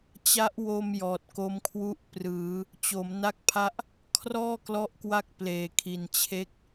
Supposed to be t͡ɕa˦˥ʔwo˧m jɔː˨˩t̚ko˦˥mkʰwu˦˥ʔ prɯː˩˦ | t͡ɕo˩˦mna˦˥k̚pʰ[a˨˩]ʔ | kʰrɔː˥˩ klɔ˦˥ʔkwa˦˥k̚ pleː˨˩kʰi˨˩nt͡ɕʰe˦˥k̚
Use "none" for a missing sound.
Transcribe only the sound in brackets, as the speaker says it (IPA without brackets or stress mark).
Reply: a˦˥